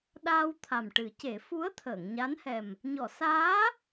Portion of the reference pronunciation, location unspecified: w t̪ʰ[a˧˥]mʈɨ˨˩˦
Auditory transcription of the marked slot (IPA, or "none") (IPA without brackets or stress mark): a˨˩